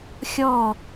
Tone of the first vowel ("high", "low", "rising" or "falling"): falling